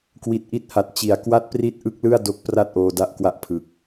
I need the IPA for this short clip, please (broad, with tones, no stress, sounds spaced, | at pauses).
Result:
k w i˨˩ t̚ ʔ i˦˥ t̚ h a˨˩ t̚ t͡ɕ i˩˦ a̯ k w a˥˩ t̚ p r i˥˩ t̚ ʔ ɯ˦˥ k̚ l ɯ˥˩ a̯ d o˦˥ k̚ p r a˥˩ t̚ ʔ oː˧ d a˦˥ ʔ k w a˦˥ ʔ pʰ ɯ˨˩ k̚